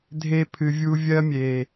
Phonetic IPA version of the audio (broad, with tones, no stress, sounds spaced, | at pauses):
dʱ e˧ pʰ ɨ˨ vʲ u˧ vʲ ɜ˦ mʲ e˨